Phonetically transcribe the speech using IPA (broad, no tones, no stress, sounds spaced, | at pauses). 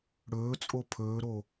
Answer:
ɽ ɵː t͡sʼ o pʰ ɵː ɾ o